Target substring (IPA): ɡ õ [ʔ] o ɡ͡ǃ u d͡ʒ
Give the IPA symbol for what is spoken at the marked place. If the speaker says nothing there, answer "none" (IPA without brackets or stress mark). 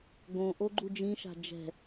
ʔ